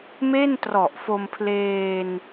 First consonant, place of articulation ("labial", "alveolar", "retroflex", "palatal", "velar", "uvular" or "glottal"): labial